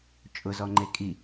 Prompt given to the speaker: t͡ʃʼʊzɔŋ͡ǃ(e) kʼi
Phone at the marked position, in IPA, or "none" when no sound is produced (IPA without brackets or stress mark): e